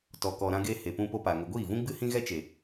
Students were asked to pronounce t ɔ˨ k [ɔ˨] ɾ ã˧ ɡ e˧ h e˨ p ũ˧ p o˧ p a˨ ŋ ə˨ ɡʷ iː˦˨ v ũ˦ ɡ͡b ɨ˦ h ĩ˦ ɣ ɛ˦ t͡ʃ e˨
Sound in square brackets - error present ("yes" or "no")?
no